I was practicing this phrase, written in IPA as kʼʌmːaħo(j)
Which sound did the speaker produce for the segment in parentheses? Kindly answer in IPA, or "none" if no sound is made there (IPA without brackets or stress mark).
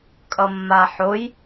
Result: j